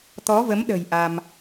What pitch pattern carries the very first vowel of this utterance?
rising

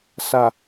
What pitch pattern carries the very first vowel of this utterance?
low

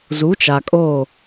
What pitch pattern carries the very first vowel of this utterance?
rising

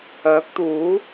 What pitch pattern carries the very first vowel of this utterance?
rising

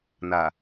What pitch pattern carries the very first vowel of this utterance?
low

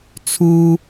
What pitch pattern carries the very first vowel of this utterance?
high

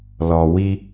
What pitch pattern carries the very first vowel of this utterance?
low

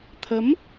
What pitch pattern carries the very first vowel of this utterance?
rising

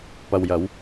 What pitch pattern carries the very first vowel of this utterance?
low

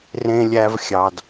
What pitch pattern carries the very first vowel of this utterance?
low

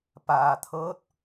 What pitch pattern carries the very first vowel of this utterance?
low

